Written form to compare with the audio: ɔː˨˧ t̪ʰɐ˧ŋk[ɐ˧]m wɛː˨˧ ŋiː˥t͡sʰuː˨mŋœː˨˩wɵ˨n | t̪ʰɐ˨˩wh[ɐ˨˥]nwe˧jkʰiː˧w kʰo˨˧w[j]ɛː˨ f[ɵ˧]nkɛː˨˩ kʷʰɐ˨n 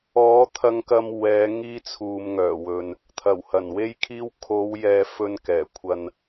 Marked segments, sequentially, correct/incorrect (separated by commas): correct, incorrect, correct, correct